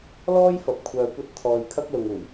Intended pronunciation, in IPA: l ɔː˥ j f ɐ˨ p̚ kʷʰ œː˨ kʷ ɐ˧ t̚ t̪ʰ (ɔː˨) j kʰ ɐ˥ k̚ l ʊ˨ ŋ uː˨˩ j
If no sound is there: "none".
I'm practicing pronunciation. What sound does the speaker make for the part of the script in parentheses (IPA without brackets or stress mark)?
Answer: ɔː˨